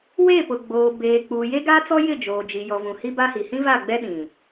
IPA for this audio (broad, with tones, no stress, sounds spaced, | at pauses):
w e˦˨ p ʊ˨ ɡ͡b oː˨ b eː˨ k͡p uː˨ j e˦ ɡ a˦ t͡s ɔ˦ j ɪ˦˨ d͡ʒ oː˨ d͡ʒ i˨ j ɔ˨ v ũ˨ h i˦ b a˦ h i˨ h ĩ˦ v a˦˨ ɡ͡b ɛ˦ ɗ ĩ˨